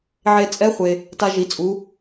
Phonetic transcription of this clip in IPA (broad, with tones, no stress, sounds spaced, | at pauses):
ʕ e˧ t͡sʼ ɛ˧˥ χʷ e˩ | t a˧ ʒ i˩˧ t͡sʼ u˩˧